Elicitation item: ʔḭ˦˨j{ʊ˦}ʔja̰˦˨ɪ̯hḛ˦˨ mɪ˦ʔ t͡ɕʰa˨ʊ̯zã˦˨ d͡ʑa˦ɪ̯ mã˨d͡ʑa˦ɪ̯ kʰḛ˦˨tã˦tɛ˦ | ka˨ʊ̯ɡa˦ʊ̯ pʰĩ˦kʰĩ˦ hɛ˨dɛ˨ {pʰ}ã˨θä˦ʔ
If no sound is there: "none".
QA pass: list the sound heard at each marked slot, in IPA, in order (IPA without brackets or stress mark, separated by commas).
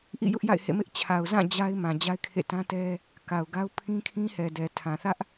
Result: ʊ˦, tʰ